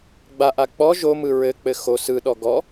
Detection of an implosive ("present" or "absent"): present